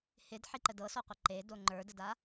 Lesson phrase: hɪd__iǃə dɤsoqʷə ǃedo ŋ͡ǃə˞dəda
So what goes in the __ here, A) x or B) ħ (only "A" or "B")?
B